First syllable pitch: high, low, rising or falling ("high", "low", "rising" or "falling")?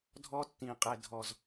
high